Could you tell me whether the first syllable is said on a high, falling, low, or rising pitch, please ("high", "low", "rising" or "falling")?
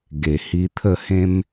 low